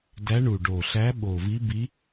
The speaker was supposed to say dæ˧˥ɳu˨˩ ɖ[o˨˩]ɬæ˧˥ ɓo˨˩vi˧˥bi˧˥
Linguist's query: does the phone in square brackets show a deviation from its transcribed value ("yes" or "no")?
no